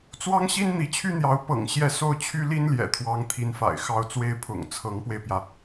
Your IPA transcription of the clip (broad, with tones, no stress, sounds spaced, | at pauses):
t͡s w ɑ˥ ŋ ɕ i˥ n n̪ i˧˥ t͡ɕʰ y˥ n̪ j ɑ˧˥ ʊ̯ p ɤ̰˨˩ ŋ ɕ j ɛ˥˧ s o˥˩ ʊ̯ t͡ɕʰ y˥ l i˥ n l j ɛ̰˨˩ t̪ʰ w ɑ˧˥ ŋ t̪ʰ i˧˥ n f a̰˨˩ ɪ̯ x ɑ˥˩ ʊ̯ t͡s w e˥ ɪ̯ pʰ ʊ̰˨˩ ŋ t͡sʰ ɤ˧˥ ŋ p w e˧ ɪ̯ p j ä˩